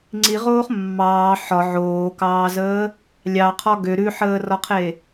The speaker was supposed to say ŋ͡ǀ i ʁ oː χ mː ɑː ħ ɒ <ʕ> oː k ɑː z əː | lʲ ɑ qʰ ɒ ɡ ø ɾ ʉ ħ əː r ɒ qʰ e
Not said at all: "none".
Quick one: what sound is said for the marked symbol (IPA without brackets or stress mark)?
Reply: ʕ